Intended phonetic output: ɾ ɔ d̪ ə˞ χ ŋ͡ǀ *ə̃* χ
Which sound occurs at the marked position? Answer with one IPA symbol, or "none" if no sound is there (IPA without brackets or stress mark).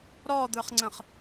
ə̃